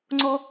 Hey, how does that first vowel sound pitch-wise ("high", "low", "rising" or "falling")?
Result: high